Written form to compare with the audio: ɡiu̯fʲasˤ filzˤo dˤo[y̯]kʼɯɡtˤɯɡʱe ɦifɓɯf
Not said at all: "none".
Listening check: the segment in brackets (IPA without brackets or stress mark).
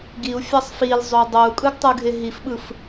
u̯